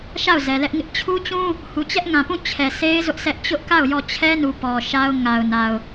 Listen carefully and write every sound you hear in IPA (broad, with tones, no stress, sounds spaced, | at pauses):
ʃ a˦˨ ʊ̯ z ɛ˨ l ɛ˦ ʔ ŋ ɪ˦ ʔ t͡ɕʰ u˦ t͡ɕ ũ˦ | h u˨ t͡ɕ ɛ˦ ʔ ŋ ã˨ p ũ˦˨ t͡ɕʰ ɛ˨ sʰ e˦ ɪ̯ z ʊ˦ ʔ sʰ ɛ˦ ʔ t͡ɕ ʊ˦ ʔ k a˦˨ ʊ̯ j ɔ˦˨ t͡ɕʰ ɛ˦ n u˨ p ɔ˨ ʃ a˦ ʊ̯ ŋ a˨ ʊ̯ n a˨ ʊ̯